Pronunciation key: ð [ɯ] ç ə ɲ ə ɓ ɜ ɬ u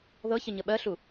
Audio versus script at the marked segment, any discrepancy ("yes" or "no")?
yes